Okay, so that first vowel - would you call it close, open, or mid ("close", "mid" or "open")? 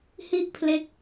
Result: close